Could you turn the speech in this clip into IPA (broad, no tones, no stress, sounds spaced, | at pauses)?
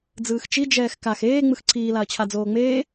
d͡z ɯː x t͡ʃ i d͡ʒ ɛː x k a x eː ŋ͡m ɯ x ǀʰ iː l a ɐ̯ t͡ɕʰ a d͡z oː ŋ͡m eː